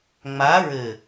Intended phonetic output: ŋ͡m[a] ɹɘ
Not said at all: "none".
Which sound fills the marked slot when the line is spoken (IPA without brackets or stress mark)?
a